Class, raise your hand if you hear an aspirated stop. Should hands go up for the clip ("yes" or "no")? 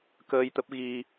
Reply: no